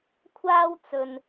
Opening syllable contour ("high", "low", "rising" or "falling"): high